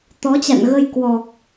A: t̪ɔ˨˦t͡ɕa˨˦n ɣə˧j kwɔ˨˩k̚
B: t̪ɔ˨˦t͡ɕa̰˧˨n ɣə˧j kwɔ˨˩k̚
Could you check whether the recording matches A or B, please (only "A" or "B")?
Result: B